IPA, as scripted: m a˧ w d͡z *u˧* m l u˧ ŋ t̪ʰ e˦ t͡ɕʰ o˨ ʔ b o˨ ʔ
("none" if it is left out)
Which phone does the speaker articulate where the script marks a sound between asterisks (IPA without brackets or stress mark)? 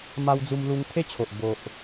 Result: u˧